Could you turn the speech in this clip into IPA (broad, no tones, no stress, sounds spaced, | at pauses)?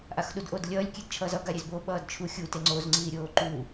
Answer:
ʔ a x ɗ u d ʔ o d lʲ ʌː lʲ kʲ e d t͡ʃʰ ʌː z ʌ ɡ a ɾʲ e z b o ɓ ʌː d t͡ʃʰ u xʲ u t e ŋ͡ǀ o z ŋ͡ǀ iː ɾʲ oː ǃ uː